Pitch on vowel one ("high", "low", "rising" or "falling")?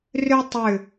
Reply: high